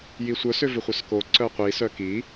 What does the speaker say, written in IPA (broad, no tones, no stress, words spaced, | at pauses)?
jisʷœsʏ vʏχʷœsko ǀœqʷisœ ki